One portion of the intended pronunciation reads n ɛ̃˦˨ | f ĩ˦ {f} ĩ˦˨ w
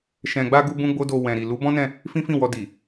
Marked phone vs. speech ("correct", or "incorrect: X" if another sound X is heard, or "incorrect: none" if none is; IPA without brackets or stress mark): correct